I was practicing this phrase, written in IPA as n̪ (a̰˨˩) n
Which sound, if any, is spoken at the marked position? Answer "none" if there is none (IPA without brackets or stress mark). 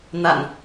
a̰˨˩